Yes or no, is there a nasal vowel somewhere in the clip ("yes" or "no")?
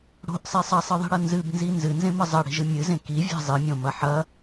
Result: yes